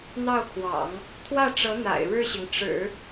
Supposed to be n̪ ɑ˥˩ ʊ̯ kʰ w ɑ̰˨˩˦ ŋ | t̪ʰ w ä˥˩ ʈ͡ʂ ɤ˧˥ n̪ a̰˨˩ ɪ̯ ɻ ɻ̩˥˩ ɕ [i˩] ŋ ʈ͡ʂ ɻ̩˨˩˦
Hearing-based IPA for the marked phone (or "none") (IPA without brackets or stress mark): i˩